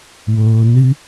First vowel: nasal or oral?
oral